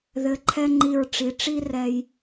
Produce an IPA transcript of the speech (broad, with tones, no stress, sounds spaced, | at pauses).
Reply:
ð ɘ˩˧ ǃʰ ɛ˧ ŋ͡ǃ i˧˩ ɹ ʈ͡ʂ i˩˧ ʈ͡ʂ i˥ r ɛ˧ j